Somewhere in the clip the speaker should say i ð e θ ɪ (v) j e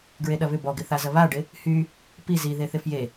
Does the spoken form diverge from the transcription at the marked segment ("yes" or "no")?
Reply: yes